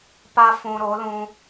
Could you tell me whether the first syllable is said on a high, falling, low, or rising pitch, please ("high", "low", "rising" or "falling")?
high